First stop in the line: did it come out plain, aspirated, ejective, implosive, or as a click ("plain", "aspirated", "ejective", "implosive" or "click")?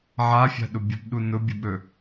implosive